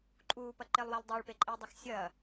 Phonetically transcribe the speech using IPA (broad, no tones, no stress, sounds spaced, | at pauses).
ǃʼ uː p ɐ ǃ e lˠ w a lˠ dˤ e ɭ p e ǃʼ iː dˤ ɐ x sʲ ɐː